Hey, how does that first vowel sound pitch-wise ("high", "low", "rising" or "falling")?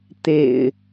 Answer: low